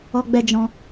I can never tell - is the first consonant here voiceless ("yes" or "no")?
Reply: no